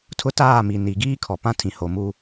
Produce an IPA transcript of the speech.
tʰ ʊ˦ t aː˦˨ m i˨ n i˨ ɡ iː˦ kʰ ɔ˨ p ã˦ tʰ ĩ˨ h o˨ m u˦

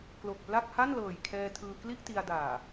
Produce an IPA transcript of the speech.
k l o˨˩ k̚ p l a˥˩ k̚ h a˥˩ n l ɤː˨˩ j kʰ ɛː˧ tʰ ɯː˧ k l i˥˩ ʔ t i˧ a̯ d aː˨˩

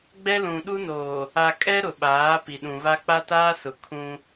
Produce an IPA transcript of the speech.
ɡ͡b ɛ˦ l ũ˨ ɗ u˦ n oː˨ | a˨ kʼ ɛ˦ ɾ ʊ˨ ɓ aː˨˦ p i˨ ɗ ũ˨ β a˦ k͡p a˦ t aː˦ s ʊ˨ kʰ ũ˦

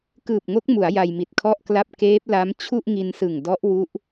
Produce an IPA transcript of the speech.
k ɯː˨˩ p̚ ŋ o˦˥ k̚ m u˩˦ a̯ j a˧ j m i˨˩ t̚ kʰ ɔ˥˩ ʔ k l a˥˩ p̚ k eː˦˥ p̚ l a˦˥ m t͡ɕʰ u˥˩ ʔ ŋ i˧ n s ɯ˨˩ ŋ d ɔ˦˥ ʔ w u˦˥ ʔ

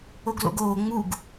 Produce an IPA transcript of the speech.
o ɡ l o̰ ɡ oː ŋ͡m u ɡ

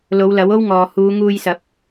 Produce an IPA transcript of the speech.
l o˨˧ w l ɐ˨˥ w o˥ w ŋ ɔː˨ h uː˨˧ ŋ uː˧ j s ɐ˨˥ p̚

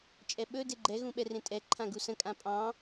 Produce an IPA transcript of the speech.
t͡ʃʼ ɛ ɓ ɵ d e ɡ͡ǃ ɛ ɣ ũ ɓ ɛ r ẽ tʼ ɛ ǃʰ ã ɡ u s ə̃ kʼ ã pʼ ɑ̃

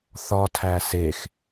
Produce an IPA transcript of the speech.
θ ɒ tʰ æ s e x

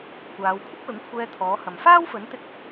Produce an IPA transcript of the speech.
kʷ aː˨˧ w kʷʰ ɪ˥ k̚ l ʊ˨˥ ŋ kʷʰ ɛː˧ t̪ʰ ɔː˨˥ h ɐ˨ m f aː˥ w f ɵ˨˥ n t̪ ɪ˧ k̚

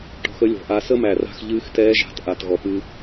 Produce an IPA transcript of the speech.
ʈ ɔ̤˧ x ə˥ lʲ ɔ̤˩ ʔ a˧ s ə˥ m æ˩ r a̤˧ x ʎ ɨː˧˥ x t ɛː˧˥ ʒ a̤˩˧ t ʔ a˩ t ɣ ɔ˩ p ɨ˧

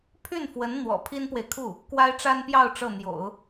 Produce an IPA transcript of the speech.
pʰ y˥˩ n f w ə˧˥ n n̪ w ɔ̰˨˩ pʰ i˥ n p w e˨ ɪ̯ kʰ u˥˩ | k w a˥ ɪ̯ ʈ͡ʂ a˥ n p j ɑ˥˧ ʊ̯ ʈ͡ʂ ɤ˥˩ n̪ j o̰˨˩˦ ʊ̯

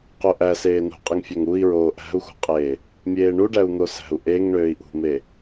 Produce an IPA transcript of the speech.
q o ʔ æ s eː n ṳ qʼ ɯ ŋ fʲ ø ŋ u i̯ ɹ oː ʔ æ̤ u̯ x ṳ qʼ eː | mʲ eː ɳ u ɖ æ u̯ n̪ o s æ̤ u̯ ʔ e ŋ ɳ øː i̯ ʔ ṳ m e

